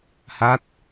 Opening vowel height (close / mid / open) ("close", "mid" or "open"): open